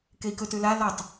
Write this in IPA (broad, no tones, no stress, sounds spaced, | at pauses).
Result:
k e i̯ k ɵ t ʉ l a l ɔ tˤ